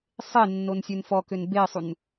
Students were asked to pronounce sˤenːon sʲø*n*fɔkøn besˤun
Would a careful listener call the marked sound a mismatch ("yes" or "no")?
no